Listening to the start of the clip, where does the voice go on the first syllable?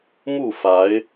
falling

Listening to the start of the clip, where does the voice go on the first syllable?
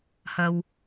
low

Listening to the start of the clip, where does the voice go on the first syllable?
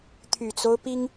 low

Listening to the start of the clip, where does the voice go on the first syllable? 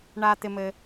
low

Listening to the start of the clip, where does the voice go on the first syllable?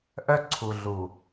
high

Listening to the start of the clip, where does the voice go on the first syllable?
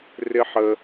high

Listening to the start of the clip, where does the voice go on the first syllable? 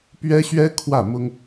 high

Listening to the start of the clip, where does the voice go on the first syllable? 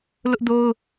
high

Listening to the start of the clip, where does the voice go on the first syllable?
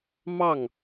falling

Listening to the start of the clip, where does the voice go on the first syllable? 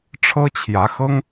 high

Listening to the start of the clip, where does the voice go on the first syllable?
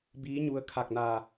rising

